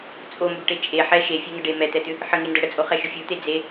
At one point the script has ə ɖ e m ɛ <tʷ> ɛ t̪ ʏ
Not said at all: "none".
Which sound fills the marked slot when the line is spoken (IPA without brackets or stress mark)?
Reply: t̪